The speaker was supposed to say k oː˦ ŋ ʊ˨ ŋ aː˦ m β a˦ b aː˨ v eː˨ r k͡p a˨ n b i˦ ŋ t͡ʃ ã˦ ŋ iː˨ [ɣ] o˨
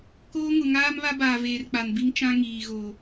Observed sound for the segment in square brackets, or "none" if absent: ɣ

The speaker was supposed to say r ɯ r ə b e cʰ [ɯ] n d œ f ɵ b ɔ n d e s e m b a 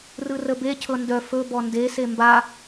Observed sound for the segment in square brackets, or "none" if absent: ɤ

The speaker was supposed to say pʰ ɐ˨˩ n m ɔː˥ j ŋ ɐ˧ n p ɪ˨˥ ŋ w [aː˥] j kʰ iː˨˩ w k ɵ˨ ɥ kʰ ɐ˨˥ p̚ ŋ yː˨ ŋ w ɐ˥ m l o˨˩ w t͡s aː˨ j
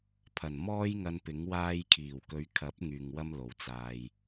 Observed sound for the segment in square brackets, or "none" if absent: aː˧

